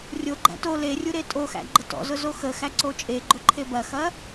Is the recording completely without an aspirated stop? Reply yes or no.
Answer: no